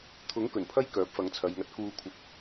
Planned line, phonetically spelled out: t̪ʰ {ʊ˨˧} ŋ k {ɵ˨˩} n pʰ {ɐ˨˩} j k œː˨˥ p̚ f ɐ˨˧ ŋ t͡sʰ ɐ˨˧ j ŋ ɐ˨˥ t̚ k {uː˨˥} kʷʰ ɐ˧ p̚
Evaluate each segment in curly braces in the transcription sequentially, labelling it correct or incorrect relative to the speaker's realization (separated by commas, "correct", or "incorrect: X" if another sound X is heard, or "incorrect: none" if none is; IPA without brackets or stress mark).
incorrect: ʊ˨˥, correct, incorrect: ɐ˥, incorrect: uː˧